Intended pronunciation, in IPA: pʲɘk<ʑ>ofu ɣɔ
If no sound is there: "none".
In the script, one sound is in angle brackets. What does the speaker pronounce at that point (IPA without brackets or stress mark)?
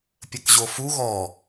ʑ